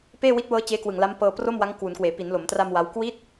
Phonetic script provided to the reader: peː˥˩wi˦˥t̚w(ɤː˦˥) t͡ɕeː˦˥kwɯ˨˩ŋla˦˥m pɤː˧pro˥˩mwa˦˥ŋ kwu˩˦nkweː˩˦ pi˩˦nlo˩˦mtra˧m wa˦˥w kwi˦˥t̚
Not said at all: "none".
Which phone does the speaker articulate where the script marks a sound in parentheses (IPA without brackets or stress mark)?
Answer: ɤː˦˥